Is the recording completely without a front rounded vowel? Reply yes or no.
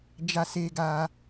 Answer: yes